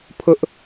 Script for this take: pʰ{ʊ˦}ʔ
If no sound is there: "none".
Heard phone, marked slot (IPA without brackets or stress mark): ʊ˦